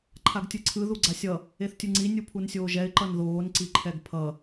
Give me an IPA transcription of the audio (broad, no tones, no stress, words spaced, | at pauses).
ǃʰaɡtʲɯǀʰɯ ðuɡ͡ǀasʲʌ | eθtʲɯŋ͡ǀi nʲupʰunsʲoːʒɛɪ̯ ǃʌnðoːn ǀiǃʰɛɡpʰʌ